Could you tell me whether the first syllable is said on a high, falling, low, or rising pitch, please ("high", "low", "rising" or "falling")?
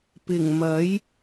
low